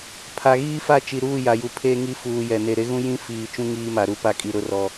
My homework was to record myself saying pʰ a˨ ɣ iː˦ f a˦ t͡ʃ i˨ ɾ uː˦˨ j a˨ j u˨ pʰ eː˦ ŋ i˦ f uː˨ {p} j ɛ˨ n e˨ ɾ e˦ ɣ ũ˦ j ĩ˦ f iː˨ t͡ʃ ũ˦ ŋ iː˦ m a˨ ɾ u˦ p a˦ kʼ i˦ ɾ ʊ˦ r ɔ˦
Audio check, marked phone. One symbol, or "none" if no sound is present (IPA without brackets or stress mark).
none